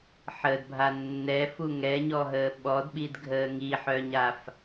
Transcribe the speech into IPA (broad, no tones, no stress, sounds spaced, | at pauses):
ħ ə d bʱ a nː ɛ f u ŋ ɛ ɲ ɔ ɦ əː ɓ ɔ d ɓ i d ɡʱ əː ŋ i ħ œ ɲ a f